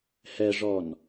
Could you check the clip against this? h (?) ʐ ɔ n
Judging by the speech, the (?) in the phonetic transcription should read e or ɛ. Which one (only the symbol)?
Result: ɛ